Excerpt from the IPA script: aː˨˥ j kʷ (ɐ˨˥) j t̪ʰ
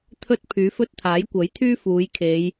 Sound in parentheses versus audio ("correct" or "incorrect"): correct